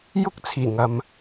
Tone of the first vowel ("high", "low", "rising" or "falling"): high